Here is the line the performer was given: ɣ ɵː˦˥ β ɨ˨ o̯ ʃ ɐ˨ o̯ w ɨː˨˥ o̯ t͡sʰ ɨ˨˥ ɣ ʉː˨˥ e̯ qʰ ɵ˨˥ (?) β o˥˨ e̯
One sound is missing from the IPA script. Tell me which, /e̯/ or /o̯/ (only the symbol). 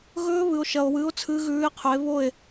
e̯